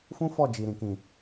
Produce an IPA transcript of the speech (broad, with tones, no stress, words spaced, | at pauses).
fũ˦fɔ˦˨ d͡ʒi˨ɾĩ˨ kĩ˨